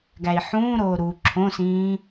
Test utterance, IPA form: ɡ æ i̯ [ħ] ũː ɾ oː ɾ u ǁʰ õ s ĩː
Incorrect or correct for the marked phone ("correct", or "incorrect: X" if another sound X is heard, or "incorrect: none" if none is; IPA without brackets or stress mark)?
correct